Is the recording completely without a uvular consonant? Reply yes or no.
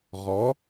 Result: no